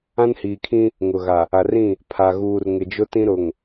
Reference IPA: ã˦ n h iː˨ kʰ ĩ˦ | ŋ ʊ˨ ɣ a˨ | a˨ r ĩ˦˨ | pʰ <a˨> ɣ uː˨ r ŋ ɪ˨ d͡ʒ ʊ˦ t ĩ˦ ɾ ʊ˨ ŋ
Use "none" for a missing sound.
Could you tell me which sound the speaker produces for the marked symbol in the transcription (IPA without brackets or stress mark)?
a˨